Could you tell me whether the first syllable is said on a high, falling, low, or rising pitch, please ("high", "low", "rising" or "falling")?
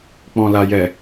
low